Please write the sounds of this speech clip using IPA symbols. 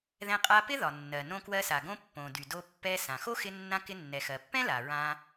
ðɛ̃˧qʼa˧pɪ˥ ðɒ˩nːɜ˩ nõ˧kwɜ˧sa˩ ɡõ˧pːõ˩dy˩ do˧pːɛ˧ sã˩xo˥ xɪ˧nːã˧ kɪ˧nːɛ˩xɜ˩pːɛ̃˥ la˩ɹã˧

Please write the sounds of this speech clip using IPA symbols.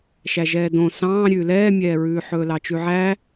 ʃæʒɛːdõ sɑ̃ː ɾʲʉːlɛːmʲɛːɹʉː ħɵːlɑt͡ʃʉʕæ

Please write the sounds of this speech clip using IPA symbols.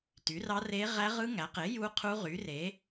ty˩˥rɑ˦˥re˦˥ ʁæ˦˥ʁɯ˦˥ ŋæ˩˥qe˩˥ ju˦˥ qʰu˦˥ʁy˩˥ re˩˥

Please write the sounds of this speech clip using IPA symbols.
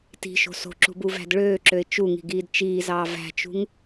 ti̤ʃo̤ so̤ǁṳbuvæ̤d ɭøːǁøɪ̯ t͡ʃuŋi̤ɡiːd t͡ʃiːzɑː væ̤t͡ʃṳŋ

